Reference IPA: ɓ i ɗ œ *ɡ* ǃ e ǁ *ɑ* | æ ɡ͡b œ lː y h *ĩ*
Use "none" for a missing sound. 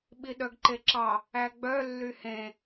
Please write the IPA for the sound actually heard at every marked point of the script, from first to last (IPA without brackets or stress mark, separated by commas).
ɡ, ɑ, ẽ